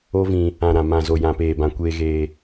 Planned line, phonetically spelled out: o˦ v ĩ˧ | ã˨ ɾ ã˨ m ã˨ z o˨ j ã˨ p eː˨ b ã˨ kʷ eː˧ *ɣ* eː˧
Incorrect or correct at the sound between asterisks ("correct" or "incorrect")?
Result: correct